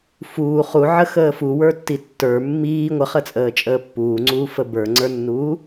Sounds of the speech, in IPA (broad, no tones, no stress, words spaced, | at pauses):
fuː χuʕə xəːfu wə˞tːitːə˞ mːiː ŋʷəχət͡sʼəːt͡ʃʼəː pːuːŋ͡ǀuːfə bə˞ŋ͡ǀə˞nːuː